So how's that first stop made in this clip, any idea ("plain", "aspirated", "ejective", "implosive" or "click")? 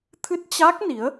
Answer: aspirated